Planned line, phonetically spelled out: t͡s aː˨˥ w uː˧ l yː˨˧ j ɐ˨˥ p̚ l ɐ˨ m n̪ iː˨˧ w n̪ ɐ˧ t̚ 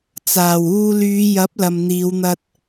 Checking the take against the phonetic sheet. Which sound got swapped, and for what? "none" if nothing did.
aː˨˥ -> aː˨˩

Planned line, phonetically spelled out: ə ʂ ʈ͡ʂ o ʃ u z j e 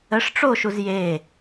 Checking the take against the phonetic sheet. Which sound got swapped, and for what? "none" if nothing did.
none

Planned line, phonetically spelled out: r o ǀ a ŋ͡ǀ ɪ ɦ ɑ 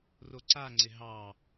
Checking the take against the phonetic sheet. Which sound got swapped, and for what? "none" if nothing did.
none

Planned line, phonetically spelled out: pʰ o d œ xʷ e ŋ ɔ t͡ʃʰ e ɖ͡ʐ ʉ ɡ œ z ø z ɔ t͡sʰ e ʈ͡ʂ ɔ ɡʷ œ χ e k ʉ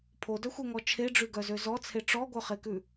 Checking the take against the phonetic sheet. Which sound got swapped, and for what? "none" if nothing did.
none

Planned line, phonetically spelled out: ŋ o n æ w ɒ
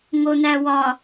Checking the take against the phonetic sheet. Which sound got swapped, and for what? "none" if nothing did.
none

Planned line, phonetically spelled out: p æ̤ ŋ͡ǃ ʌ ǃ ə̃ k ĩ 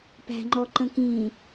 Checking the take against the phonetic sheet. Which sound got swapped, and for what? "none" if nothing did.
ʌ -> ɔ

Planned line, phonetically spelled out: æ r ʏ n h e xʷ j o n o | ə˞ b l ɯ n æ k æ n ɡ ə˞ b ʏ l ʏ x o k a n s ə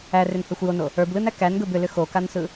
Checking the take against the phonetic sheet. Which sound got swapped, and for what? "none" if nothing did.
ə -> ɯ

